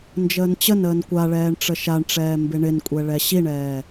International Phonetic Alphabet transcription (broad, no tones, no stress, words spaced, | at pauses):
nd͡ʒəːnt͡ɕənəːn kʷaɭɛːɳ ʈ͡ʂəʃaɳʈ͡ʂɛː mbɪɳɪnkʷʼɛ ɭɛɕiɳɛː